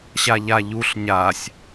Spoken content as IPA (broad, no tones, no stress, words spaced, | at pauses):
ɕaʎaʎuɬ ɲasʲ